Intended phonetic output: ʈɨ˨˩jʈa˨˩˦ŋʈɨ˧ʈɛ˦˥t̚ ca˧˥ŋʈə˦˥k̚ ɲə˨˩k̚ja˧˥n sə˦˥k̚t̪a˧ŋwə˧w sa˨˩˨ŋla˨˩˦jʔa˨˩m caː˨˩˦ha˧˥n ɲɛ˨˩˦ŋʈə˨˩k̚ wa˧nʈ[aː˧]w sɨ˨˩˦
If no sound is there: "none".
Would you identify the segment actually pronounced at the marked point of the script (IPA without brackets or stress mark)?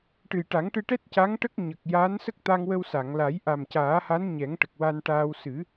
aː˧